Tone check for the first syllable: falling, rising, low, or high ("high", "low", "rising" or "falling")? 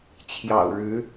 low